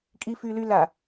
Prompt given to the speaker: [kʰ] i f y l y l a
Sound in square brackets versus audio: incorrect: kʼ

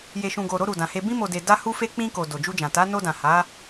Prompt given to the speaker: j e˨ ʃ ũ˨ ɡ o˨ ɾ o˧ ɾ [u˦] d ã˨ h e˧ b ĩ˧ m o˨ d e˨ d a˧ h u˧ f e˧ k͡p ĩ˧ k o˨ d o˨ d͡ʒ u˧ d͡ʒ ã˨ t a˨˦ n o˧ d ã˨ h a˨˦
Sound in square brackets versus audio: incorrect: u˨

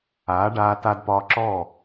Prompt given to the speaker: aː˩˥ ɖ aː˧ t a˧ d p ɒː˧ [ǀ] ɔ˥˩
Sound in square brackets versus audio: incorrect: ǁ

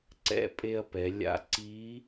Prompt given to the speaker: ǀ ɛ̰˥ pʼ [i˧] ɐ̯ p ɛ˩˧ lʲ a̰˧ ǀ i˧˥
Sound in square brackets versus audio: incorrect: e˧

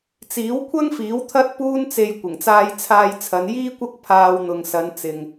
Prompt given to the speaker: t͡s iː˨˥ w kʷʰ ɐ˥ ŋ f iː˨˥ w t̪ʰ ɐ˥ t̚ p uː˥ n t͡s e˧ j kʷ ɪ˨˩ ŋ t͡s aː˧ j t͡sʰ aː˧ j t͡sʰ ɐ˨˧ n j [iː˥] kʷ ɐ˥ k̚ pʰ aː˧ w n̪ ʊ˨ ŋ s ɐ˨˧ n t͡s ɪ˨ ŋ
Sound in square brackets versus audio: correct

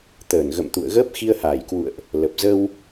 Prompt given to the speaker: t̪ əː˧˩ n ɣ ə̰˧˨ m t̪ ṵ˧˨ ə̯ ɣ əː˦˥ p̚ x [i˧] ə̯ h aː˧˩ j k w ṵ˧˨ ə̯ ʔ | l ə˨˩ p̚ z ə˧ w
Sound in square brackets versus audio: correct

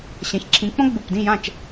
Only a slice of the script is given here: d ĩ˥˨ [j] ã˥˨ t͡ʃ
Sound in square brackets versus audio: correct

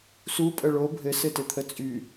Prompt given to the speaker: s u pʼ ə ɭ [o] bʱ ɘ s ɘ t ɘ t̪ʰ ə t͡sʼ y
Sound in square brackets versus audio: correct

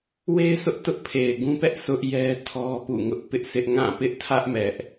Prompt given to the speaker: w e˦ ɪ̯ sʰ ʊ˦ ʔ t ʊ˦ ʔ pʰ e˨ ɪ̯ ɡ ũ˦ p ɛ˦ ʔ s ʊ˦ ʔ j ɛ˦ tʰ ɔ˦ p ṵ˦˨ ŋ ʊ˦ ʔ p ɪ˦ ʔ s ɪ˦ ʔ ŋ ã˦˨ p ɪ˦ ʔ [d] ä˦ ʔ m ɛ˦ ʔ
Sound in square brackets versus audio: incorrect: tʰ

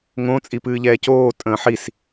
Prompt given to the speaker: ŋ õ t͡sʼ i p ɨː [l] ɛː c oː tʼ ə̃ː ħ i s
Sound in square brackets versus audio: incorrect: ʎ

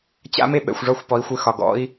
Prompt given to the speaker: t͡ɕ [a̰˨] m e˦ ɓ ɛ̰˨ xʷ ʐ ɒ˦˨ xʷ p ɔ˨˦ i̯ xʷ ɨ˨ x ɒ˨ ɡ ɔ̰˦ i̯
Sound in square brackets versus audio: incorrect: a̰˦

